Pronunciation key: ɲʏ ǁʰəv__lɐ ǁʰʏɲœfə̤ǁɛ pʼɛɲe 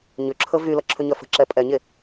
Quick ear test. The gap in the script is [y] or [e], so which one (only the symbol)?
y